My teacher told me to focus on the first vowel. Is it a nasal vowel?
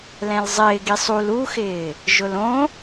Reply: yes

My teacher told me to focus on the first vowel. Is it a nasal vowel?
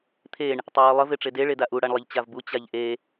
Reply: no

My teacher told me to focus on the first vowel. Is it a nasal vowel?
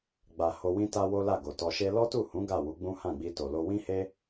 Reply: no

